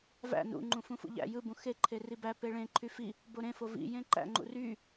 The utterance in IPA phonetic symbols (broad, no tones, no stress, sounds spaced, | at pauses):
v æ̰ n ṵ ŋ͡ǃ ũ f ũ f ṵ ʎ æ̰ j ɯ b ũ x e ǃʰ e r i b æ p e ɭ ẽ ǃʰ y f i | b o ɾ ẽ f o v ḭ j ẽ ǃ æ̰ ŋ͡ǃ ṵ r y